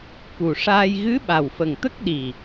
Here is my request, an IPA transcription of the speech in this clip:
k u˨˩ ʂ aː˧ j ɣ ɨ˧˥ ɓ a˨˩ w f ə˨˩ ŋ t̪ ə˦˥ k̚ ɗ i˨˩

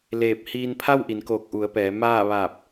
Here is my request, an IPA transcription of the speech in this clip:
l eː˧˩ p̚ h iː˧ n pʰ a˥˨ w ʔ i˩˧ n k oː˧˩ k̚ ʔ u˩˧ ə̯ p ɛː˩˧ m aː˥˨ ʋ aː˧˩ p̚

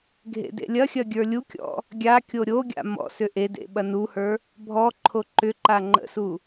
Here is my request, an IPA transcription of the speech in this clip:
ɡʱ ḛ d ḛ lʲ ɐ xʲ ɐ ɡʲ ə˞ lʲ u kʲ ɔ̰ | ɡʲ a kʲ o ɾʲ o ɡʲ a̰ m ɔ̰ s ʏ ʔ e d ḛ ɓ ɐ n u h ə˞ | bʱ ɔ ǃʰ o ǃ ʏ ǃ a ŋ͡ǃ ə̰ s u

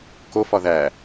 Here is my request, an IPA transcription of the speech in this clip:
k o f ɒ ð æ

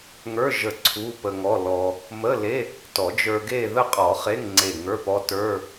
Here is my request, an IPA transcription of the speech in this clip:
ŋ ə˞˧˥˧ ʒ ə˧˩ ǀʰ u˧˥˧ p ə˧ ŋ ɔ˧˥˧ l ɔ˧ | m ə˧˥˧ l e˧˥˧ | t ɔ˨˩˦ d͡ʒ ə˞˧ ɡ e˥˧ ð ə˥˧ qʼ ɔ˨˩˦ χ e˧˥˧ ŋ ŋ͡ǀ e˧˩ ŋ ə˞˧˥˧ p ɔ˧˥ t ə˞˧˥˧

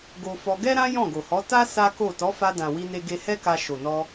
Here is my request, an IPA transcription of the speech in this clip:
ɡ o˧ f ɔ˧ ɡ ɛ˦ ɾ ã˦ j ɔ̃˦˨ ɡ o˨ h ɔ˨˦ t a˦ s a˦ k o˦˨ t ɔ˨˦ f a˧ d ã˨ w i˧ n e˧ ɡ e˧ h ɛ˦ k a˧ ʃ o˨ n ɔ˧

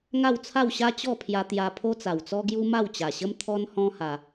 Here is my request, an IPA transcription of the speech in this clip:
ŋ a˥˧ w t͡sʰ a˥˧ w ɕ a˦ t͡ɕ ɔ˥˧ pʰ j a˧ t̪ j a˧ pʰ o˦ t͡s a˨˩ w t͡s ɔ˦ ɡ j u˦ m a˥˧ w t͡ɕ a˨˩ ɕ ə˦ m t̪ʰ ɔ˦ n h ɔ̃˦ h a˧

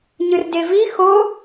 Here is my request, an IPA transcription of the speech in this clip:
ɲ ɯ r d e v i x o

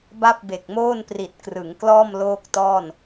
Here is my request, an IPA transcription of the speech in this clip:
b a˥˩ p̚ b e˨˩ k̚ m oː˥˩ n p r i˨˩ t̚ k r ɯ˩˦ ŋ k l ɔː˥˩ m l oː˥˩ k̚ t ɔː˥˩ n

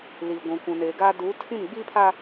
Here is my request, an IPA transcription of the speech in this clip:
l i˨ ɡʷ ũ˨ kʷ ũ˨ n eː˨ ɡ aː˦ d uː˨˦ tʰ ĩ˦˨ m ɡ͡b i˦ pʰ a˦

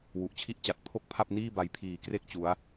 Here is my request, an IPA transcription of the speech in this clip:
w u˨˩ ʔ t͡ɕʰ i˦˥ ʔ t͡ɕ a˨˩ t̚ pʰ o˥˩ k̚ pʰ a˥˩ p̚ n iː˥˩ b a˧ j pʰ iː˨˩ k r e˦˥ k̚ t͡ɕ u˦˥ a̯

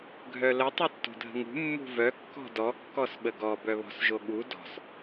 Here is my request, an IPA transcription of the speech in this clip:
ɡʱ œ l ə tˤ u tː o̤ dʱ ə̤ ŋ ṳ mː ṳ v œ kː ɔ̤ d ɔ kː ɔ s ɓ ə ɡ ɔ b œ β ɔ̤ s ʒ o ɠ u d ɔ̤ s

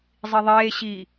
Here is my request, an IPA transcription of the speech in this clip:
zˤ i ðˤ eː ɕ i

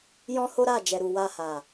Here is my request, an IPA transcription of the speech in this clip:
j ɔ̃˦ h o˦ ɾ a˦˨ d͡ʒ ɛ˨ ɾ u˨ w a˧ h a˨

